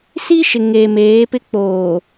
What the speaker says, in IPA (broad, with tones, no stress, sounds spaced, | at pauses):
s i˦ ʃ ɪ˨ ŋ eː˨ m eː˨˦ p ɪ˦ k͡p oː˨